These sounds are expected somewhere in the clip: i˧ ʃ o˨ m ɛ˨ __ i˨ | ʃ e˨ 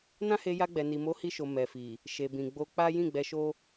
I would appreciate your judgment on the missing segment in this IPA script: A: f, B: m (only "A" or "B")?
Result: A